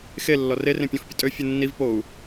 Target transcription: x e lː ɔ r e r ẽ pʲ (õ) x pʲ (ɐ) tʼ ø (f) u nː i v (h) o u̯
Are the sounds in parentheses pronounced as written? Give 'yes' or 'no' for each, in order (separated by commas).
no, no, no, no